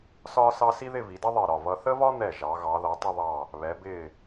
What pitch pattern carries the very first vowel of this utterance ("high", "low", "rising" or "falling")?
high